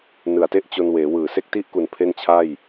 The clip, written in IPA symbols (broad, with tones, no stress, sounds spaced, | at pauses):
n ɯ˨˩ a̯ t e˥˩ ʔ t͡ɕ o˧ n w eː˩˦ w ɯː˨˩ s e˥˩ k̚ t i˥˩ ʔ k u˩˦ n pʰ e˥˩ n t͡ɕʰ a˥˩ j